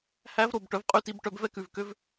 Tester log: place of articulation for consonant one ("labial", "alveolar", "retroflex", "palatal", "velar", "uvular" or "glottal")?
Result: glottal